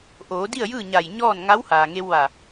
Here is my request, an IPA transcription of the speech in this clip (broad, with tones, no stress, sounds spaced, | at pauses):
ʔ oː˩˧ d i˥˨ ə̯ j ɯː˥˨ ɲ a˧˩ j ɲ ɔː˥˨ n ŋ a˧˥ w h aː˩ ŋ e˧ w ʋ a˧˩